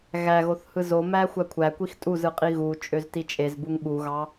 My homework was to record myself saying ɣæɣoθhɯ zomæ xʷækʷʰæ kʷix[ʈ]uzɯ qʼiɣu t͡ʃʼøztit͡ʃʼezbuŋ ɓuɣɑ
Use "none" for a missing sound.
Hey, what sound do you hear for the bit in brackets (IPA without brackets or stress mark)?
tʼ